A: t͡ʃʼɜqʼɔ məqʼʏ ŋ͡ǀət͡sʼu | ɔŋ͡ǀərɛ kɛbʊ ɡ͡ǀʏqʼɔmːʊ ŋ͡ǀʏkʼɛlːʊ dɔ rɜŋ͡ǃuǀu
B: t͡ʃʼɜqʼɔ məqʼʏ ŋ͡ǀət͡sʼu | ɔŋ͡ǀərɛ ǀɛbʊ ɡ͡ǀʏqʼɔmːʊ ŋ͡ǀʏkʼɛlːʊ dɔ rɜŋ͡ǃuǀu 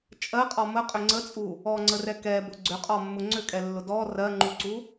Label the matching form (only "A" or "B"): A